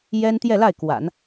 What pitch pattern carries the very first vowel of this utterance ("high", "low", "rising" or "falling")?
high